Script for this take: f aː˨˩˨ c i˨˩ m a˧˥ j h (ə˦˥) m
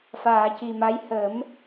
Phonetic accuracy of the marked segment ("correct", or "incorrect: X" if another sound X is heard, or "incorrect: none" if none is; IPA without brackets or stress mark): incorrect: ə˨˩˦